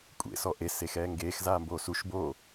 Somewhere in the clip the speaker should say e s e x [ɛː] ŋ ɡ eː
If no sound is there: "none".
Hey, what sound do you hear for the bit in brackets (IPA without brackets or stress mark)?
ɛː